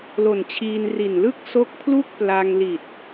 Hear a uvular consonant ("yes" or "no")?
no